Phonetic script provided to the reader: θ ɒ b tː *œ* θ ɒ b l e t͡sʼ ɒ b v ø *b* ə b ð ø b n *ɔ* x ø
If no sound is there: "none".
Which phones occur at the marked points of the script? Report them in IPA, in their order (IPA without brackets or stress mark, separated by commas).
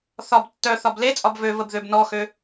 œ, v, ɔ